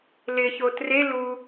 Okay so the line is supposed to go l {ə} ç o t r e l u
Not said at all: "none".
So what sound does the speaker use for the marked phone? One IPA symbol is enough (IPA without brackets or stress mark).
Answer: ɪ